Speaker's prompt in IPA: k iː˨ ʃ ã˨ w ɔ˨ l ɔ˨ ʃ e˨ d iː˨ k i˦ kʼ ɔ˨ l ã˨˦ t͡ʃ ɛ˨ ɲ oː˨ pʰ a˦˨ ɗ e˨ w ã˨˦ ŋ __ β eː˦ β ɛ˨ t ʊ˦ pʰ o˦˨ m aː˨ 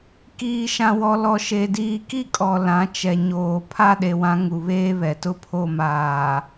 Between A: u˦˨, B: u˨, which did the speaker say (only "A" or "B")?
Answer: B